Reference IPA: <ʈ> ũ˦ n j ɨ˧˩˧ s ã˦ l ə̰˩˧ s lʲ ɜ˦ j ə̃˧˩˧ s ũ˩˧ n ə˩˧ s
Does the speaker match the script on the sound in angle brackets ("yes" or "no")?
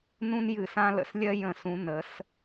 no